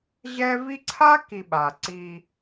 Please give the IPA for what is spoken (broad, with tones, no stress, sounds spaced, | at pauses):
ʑ ɛ˦ v i˦ ǀʰ a˦ k i˨ ɓ a˨ ǀ i˦